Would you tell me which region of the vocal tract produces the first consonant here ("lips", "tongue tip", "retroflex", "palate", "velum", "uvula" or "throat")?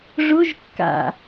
retroflex